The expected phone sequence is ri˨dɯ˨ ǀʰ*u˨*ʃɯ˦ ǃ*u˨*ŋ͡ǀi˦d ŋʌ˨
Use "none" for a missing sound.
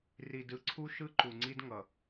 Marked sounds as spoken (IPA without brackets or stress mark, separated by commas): u˦, u˨